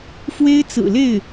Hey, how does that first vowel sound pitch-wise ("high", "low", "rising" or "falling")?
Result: high